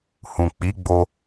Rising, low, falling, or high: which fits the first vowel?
low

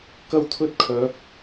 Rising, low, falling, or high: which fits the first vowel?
high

